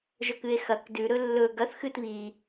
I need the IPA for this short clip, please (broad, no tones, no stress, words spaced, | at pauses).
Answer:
ʒɵkɨe̯xɐk dʉɾɵ lːɵ ɡɐθxɨt βi